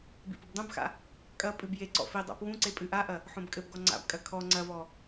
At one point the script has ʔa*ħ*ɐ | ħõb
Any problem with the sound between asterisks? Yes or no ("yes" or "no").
yes